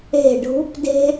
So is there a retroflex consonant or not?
yes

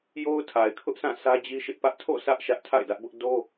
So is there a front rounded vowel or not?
no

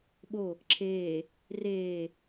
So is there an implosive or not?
yes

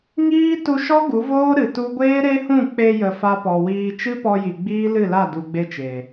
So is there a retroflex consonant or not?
no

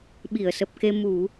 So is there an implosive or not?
yes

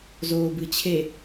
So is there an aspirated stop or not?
yes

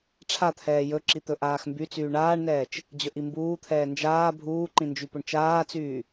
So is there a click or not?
yes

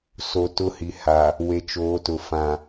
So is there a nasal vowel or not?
yes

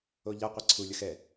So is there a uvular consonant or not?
yes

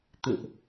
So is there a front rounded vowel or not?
no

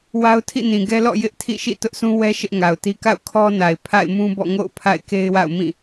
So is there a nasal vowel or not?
yes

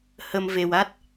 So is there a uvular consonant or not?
no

